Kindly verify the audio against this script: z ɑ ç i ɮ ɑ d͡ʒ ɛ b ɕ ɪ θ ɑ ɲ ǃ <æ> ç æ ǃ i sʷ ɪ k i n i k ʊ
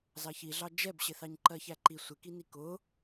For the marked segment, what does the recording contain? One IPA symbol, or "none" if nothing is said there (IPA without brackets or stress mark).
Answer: ɜ